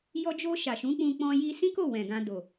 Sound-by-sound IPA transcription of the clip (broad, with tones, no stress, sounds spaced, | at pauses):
j ɔ˧ d͡ʒ o˧ ʃ a˨ ʃ ũ˨˦ k͡p ũ˧ k͡p ɔ̃˧ j i˧ s ĩ˦ k o˦˨ w ɛ̃˨ ɡ ã˧ d o˨